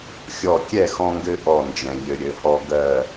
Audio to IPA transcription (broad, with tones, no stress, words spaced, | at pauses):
xʲɔ˥˩ kʲɛ˥˩xɔ̃˧ŋɡɘ˧ ʔɔ˥˩nd͡ʒɛ̃˩ʎɘ˧ ɾʲɘ˩˥hɔ˥ ɡɜ˥˩